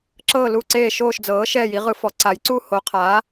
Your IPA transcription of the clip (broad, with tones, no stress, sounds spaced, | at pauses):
ǁ ɤː˥˧ l u˥˧ ǀ eː˥˧ ʃ oː˥˧ ʃ d͡z ɤː˨˥ ʃ ɛː˥˧ j i˨˥ ʁ ɯ˨˥ f ɔ˨˥ ǀ a˨˥ j ǀ u˥˧ h o˨˥ qʰ aː˨˥